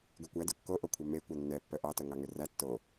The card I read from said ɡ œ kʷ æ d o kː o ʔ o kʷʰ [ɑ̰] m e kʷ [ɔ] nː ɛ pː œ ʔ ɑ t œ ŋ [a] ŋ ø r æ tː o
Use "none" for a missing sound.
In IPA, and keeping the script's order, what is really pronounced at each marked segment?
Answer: ɑ, ɑ, ɑ

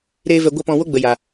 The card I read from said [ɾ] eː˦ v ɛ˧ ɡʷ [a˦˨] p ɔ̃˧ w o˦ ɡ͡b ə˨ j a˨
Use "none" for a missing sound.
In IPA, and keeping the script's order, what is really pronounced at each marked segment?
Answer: ɾ, a˦

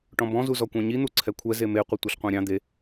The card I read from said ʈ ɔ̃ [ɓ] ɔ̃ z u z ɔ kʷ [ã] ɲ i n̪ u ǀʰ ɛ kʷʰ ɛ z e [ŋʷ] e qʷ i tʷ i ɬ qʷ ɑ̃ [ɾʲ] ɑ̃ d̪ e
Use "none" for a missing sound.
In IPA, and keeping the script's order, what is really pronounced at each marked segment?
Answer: b, ɑ̃, m, ɾʲ

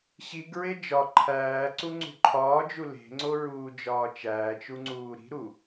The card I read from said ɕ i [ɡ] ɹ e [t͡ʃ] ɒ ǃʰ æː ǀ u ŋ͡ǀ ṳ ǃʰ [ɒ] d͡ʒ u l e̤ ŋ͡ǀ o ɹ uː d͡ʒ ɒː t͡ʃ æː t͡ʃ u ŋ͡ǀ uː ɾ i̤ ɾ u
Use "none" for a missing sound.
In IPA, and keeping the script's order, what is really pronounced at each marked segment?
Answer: ɡ, d͡ʒ, ɒː

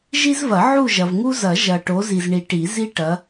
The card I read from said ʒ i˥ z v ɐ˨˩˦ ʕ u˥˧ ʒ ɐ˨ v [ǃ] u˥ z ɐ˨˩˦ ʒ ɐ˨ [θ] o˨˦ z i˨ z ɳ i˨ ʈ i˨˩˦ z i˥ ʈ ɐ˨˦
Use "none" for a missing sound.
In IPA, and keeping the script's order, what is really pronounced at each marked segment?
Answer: ŋ, ʈ

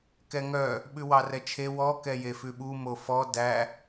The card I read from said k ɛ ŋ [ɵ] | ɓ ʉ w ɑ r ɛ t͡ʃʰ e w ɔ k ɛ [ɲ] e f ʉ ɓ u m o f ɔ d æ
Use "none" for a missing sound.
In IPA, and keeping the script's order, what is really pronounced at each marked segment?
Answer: œ, j

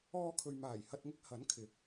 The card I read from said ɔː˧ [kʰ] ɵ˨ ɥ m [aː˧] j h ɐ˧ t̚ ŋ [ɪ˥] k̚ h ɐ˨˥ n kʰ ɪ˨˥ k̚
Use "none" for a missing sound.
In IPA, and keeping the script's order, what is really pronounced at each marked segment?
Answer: kʰ, aː˨˩, ɪ˥

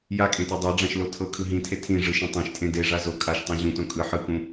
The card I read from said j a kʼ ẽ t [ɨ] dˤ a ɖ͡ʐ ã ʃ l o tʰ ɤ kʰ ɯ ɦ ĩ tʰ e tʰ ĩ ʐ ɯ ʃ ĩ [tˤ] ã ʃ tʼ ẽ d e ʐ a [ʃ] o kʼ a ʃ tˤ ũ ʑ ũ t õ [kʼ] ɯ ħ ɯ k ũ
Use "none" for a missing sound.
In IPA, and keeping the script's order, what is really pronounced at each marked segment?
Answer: e, tˤ, z, kʼ

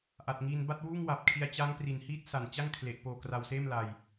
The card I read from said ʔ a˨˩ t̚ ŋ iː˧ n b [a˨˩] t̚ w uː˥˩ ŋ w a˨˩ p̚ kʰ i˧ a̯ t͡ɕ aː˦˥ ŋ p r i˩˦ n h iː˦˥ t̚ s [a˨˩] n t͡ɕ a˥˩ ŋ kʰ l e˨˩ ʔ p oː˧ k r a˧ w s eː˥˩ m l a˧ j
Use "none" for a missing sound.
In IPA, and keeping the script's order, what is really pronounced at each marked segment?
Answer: a˥˩, a˨˩

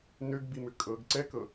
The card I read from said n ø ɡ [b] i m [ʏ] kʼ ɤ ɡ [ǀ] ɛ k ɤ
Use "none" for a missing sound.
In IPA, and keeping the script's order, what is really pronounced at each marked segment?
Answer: b, ʏ, ǀ

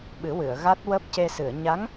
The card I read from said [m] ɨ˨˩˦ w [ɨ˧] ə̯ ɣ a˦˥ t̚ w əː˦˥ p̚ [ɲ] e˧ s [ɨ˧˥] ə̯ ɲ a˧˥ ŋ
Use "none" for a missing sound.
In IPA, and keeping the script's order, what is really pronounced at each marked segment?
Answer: ɓ, ɨ˨˩˨, c, ɨ˨˩˨

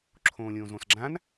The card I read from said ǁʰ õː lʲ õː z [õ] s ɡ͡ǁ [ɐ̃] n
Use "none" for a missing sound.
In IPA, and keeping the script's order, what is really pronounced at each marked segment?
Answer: õ, ã

